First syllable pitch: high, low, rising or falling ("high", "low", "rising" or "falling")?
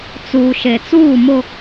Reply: low